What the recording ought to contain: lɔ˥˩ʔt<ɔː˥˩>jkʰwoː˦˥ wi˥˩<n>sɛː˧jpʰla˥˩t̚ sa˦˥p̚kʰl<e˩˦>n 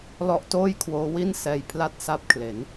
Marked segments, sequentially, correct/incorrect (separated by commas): incorrect, correct, correct